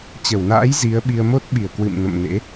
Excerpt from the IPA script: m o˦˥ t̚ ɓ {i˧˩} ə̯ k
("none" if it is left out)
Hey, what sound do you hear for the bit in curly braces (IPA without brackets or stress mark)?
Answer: i˧˩